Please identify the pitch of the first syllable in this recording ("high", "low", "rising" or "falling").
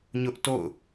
high